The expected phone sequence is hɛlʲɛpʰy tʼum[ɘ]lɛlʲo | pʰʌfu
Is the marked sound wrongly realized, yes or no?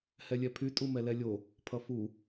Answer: yes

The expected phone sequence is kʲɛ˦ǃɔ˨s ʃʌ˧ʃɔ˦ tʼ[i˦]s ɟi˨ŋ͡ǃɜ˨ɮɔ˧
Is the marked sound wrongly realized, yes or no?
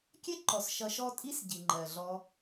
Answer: no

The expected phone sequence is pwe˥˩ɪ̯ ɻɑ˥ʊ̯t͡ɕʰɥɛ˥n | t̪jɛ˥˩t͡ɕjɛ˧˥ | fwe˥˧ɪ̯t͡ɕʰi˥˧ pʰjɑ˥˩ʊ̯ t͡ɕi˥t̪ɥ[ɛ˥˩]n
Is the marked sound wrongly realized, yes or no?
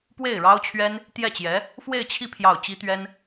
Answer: yes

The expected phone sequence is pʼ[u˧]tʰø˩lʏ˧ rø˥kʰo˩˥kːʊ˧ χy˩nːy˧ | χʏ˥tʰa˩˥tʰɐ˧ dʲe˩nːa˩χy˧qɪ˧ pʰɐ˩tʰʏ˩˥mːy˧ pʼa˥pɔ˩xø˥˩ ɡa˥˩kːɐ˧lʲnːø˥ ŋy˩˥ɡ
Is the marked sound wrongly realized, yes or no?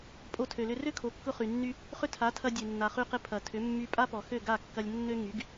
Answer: yes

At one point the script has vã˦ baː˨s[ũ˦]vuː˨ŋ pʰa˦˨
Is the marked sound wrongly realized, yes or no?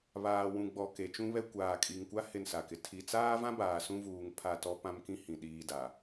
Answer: no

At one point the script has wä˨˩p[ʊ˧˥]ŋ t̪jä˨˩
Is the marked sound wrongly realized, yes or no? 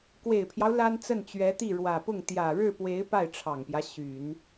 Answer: yes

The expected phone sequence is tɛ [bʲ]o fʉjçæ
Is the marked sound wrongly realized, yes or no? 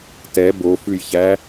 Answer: yes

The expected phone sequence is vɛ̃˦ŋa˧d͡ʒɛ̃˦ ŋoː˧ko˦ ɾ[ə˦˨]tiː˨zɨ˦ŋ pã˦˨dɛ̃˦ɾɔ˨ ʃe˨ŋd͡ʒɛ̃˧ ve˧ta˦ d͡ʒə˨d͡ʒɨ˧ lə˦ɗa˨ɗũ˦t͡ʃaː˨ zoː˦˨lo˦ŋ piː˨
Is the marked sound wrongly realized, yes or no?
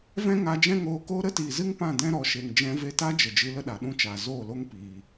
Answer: yes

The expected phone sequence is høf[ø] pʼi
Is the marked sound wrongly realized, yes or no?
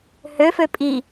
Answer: no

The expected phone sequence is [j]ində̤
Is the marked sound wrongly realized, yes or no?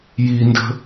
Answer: no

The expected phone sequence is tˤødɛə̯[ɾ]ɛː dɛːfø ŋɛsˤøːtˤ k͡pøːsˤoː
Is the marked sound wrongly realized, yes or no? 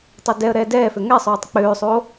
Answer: no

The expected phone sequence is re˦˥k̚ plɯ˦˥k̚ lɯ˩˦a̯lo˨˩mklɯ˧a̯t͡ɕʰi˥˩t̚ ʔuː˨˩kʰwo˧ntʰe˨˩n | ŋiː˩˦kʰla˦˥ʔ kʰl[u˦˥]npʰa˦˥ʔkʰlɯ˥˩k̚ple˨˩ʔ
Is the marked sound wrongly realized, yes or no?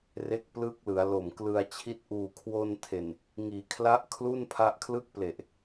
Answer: yes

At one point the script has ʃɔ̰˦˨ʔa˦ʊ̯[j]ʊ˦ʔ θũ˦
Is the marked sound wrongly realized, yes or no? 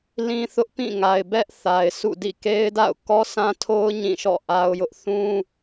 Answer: no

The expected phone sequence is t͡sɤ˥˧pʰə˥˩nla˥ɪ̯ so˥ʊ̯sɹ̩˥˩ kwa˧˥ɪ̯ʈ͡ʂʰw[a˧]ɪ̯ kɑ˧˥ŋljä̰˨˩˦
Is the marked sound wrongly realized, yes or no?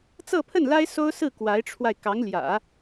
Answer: no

